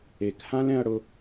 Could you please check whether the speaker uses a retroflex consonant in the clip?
yes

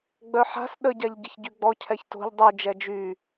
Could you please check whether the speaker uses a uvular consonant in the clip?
no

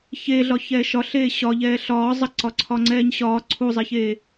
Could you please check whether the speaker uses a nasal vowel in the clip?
no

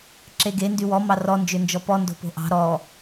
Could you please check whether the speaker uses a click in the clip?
yes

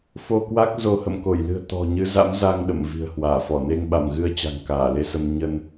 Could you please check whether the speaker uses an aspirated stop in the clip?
no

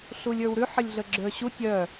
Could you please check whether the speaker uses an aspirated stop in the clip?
no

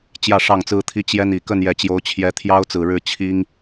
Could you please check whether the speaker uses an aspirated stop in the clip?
yes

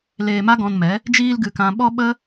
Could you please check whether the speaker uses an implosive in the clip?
yes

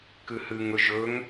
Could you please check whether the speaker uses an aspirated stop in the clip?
no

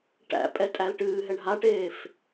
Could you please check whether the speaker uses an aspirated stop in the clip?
no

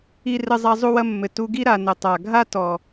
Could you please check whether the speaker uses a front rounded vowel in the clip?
no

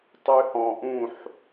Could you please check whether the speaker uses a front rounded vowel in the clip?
yes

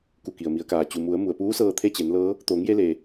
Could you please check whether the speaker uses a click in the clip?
no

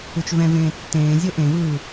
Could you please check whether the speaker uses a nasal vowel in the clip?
yes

